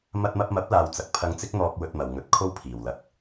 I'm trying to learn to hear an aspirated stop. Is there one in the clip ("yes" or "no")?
yes